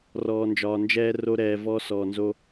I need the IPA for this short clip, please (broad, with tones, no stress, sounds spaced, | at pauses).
r ɔː˨ n d͡ʒ ɒː˨ n d͡ʒ ɛː˧ r o˧ ɾ ɛː˨ v ɔ˧ s ɔː˨ n z o˧